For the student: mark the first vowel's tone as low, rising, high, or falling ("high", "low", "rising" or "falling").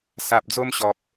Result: low